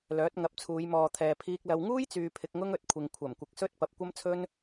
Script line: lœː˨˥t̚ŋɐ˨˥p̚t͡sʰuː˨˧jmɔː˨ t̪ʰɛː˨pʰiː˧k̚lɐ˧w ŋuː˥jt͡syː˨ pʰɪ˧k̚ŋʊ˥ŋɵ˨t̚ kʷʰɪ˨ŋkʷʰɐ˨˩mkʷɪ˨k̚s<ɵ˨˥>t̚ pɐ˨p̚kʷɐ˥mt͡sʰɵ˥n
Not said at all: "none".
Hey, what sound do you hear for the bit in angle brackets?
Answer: ɵ˥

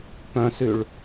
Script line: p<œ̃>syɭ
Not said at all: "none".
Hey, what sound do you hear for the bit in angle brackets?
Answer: œ̃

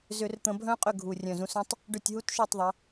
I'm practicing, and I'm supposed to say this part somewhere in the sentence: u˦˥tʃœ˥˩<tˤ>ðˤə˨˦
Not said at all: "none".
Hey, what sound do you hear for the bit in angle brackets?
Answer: tˤ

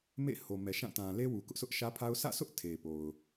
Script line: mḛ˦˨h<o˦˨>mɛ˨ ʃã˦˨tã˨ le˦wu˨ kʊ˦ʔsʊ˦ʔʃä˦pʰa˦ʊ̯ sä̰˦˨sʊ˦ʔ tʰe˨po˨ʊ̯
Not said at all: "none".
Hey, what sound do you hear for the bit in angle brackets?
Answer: o˨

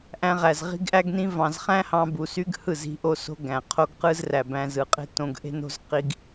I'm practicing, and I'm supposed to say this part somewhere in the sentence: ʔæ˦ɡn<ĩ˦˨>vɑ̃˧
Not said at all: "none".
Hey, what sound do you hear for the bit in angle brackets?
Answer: ĩ˦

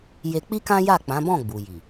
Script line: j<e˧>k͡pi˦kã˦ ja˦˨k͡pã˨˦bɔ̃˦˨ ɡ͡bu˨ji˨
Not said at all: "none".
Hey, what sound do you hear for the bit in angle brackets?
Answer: e˧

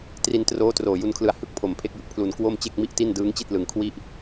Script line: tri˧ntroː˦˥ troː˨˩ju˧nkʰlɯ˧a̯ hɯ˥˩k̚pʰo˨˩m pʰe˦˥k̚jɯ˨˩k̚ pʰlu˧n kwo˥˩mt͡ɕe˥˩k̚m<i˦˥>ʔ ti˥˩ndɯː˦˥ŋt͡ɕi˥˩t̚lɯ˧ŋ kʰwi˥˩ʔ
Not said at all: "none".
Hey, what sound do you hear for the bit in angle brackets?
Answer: i˥˩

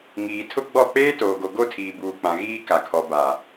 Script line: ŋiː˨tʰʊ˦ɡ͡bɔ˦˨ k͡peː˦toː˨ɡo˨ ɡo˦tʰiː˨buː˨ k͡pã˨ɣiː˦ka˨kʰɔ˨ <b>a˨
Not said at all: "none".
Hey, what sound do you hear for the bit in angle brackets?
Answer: b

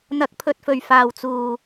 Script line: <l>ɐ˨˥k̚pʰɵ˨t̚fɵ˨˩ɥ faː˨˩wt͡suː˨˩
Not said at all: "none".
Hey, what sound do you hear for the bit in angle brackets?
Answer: n̪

